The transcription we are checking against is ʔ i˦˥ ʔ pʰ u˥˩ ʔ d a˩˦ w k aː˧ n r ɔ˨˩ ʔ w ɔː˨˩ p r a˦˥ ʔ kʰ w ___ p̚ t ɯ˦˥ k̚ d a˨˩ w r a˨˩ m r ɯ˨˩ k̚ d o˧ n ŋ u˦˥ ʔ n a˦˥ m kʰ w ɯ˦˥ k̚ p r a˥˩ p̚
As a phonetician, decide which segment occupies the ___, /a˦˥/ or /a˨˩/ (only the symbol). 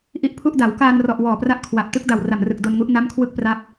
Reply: a˨˩